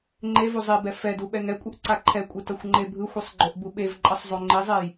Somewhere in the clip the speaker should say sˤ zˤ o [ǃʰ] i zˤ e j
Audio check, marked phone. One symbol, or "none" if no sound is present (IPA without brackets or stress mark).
ŋ͡ǃ